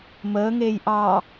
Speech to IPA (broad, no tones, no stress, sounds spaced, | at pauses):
m əː ŋ eː j ʔ ɑ